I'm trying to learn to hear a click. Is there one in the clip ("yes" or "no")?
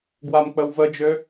no